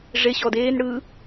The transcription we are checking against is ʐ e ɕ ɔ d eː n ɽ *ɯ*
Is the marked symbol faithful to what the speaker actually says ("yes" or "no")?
yes